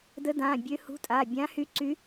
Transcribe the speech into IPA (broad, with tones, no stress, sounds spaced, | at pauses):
d ə˧˥ d ã˩˧˩ bʲ ø˧˥ h ṳ˧˥ tʼ a˩˧˩ bʲ ã˧˥ h y˧˥ ǀ y˧˥